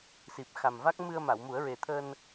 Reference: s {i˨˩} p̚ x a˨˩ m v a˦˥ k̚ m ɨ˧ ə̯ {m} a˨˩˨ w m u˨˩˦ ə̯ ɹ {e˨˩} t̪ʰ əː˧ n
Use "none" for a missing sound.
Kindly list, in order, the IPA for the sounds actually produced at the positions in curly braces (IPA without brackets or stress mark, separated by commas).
i˨˩, m, e˨˩